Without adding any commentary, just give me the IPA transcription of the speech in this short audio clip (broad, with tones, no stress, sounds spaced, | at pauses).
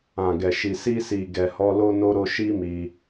ã˨ ɡ ɛ˨ ʃ i˨ s i˧ s i˨ ɡ ɛ˨ h ɔ˧ l o˧ n o˧ ɾ o˧ ʃ i˦ m i˧